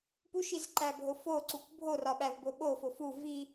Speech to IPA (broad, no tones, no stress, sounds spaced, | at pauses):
p u ʃ i z ǃ æ bʱ o f o ǀ u k bʱ o r ɒ ɓ æ v b o ɓ o f o f u v i